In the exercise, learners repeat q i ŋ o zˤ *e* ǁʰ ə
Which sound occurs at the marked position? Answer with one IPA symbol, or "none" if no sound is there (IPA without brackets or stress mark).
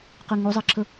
e